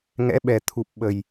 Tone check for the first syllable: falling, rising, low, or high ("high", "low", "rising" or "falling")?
rising